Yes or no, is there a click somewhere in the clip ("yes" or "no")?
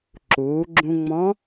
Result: yes